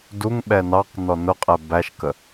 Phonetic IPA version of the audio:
d u ŋ ɓ ɛ n ɑ q n ɔ n ʊ qʼ ɛ b æ ʃ k ə

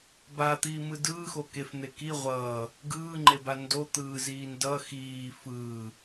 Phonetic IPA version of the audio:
b a t̪ iː m ɯ d ɯː x o k e f n̪ e k i ʁʷ ʌː | ɡ ɯː ŋ͡ǃ e b a n d o t̪ ɯː z iː n d ʌ x iː f ɯː

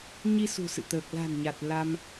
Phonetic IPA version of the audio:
ɲ i˧ s ṳ˨˩ s ɨ̰˧˨ t̪ əː˨˩ k̚ l a̤˨˩ n ɲ a˨˩ t̚ l a˧ m

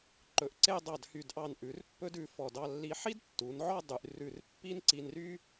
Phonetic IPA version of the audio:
ǃ ɵ˩˧ ʔ ǀ e˥˧ dˤ ɑ˧˩ d h y˧˩ d ʔ ɑ˧˩ n ʔ ʉ˩˧ r pː ɵ˥ d ʉ˧ f ɔ˧˩ d ɑ˧ lː i˧ ħ i˥ d tː u˩˧ n ʕ ɔ˥˧ dˤ y˧ ʔ r ʉ˧˩ r pː i˥ n ǀ i˧ n r y˥

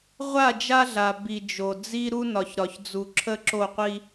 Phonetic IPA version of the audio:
ʁʷ a˦˨ d͡ʒ a˦ ɮ a˨ b i˨ d͡ʒ o˨ d͡z i˦ ɾ u˦ n ɒ˨ ç ɾ ɒ˨ ç d͡z u˨ ǁʰ ə˦ ǁ o˦˨ qʷ i˦

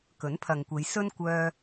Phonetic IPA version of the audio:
k ɵ˨˥ n pʰ ɐ˨ ŋ kʷ e˨˧ j s ɵ˥ n kʷ œː˧

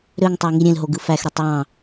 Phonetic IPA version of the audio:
ɾ ø ŋ tˤ æ ŋ i ɾʲ ẽ l ɦ o ɡ ɯ f æ x ɾ y tˤ w ɑ̃

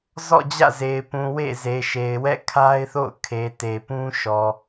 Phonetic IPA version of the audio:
z ɔ̰˦˨ d͡ʑ ä̰˦˨ z e˨ ɪ̯ p ũ˨ w ḛ˦˨ z e˨ ʃ e˨ ɪ̯ w ɛ̰˦˨ kʰ a˦ ɪ̯ θ o̰˦˨ ʊ̯ kʰ e˨ t e˨ p ũ˦ ʃ ɔ˨

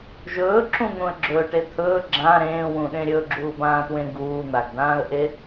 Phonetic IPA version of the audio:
ʒ ɵː ǁ ũ n̪ ũ ə̯ ɡ͡ǁ ɵː ʈ e t̪ʰ ɵː ɡ͡ǁ ã ɾ ẽː w ũ ɗ ẽ ɾʲ ɵ ɡ͡ǁ uː b ãː t w ẽ ɡ uː n̪ a ɡ d ãː ə̯ ʔ e

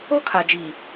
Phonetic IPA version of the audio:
o˦ kʰ a˨ d͡ʒ iː˨

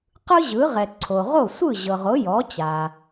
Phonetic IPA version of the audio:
q ɯ˥ ʑ ɯ˩˥ ʁ ɛ˩ ǀʰ o˩ ʁ o˥˩ sʷ ɯ˥˩ ʑ ɤ˩ ʁ o˩˥ j ɔ˩˥ t͡ɕ a˩

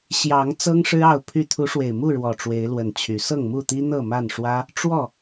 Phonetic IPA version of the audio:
ɕ j ɑ˨˦ ŋ t͡s ɤ˦ ŋ ʂ ɻ̩˦ ɑ˥˨ ʊ̯ pʰ y˥˨ t̪ʰ u˨˦ ʂ w e˨˩ ɪ̯ m u˥˨ ɻ w ɔ˨˩ ʈ͡ʂ w e˨˦ ɪ̯ l w ə˨˩ n t͡ɕʰ y˨˦ s ɤ˥˨ ŋ m u˥˨ t̪ i˦ n̪ ɤ˥˨ m a˥˨ n ʂ w ä˦ | ʈ͡ʂ w ɔ˥˨

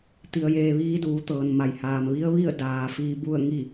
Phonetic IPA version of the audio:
t̪ i˧ ə̯ j eː˧ ʋ iː˧˥ d uː˩˧ t̪ ɤː˩ n m a˩ j h aː˩ m ʋ i˧˥ ə̯ ʋ i˥˨ ə̯ d aː˩ f iː˧ b u˥˨ ə̯ ŋ i˥˨

